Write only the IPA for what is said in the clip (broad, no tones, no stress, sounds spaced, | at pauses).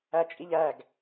æ t͡ʃʼ i ʎ æ ɡ